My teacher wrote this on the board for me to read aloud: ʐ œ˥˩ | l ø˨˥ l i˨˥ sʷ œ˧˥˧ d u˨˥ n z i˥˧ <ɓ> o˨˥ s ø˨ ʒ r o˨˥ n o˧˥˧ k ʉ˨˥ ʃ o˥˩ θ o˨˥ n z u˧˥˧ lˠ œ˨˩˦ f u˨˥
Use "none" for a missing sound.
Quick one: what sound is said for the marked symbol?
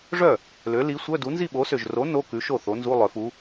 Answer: ɓ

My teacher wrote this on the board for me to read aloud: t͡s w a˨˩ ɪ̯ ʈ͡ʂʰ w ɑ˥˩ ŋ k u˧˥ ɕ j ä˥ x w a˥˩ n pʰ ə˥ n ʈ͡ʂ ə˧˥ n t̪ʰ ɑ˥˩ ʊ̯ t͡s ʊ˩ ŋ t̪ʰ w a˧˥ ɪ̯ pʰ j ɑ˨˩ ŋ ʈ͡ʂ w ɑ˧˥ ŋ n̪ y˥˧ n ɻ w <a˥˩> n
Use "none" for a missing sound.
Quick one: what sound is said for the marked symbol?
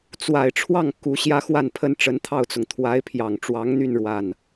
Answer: a˥˩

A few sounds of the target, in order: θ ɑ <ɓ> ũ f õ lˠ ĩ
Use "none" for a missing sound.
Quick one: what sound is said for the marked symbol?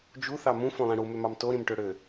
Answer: m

